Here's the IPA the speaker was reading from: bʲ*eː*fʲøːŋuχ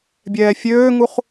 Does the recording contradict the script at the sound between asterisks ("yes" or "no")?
yes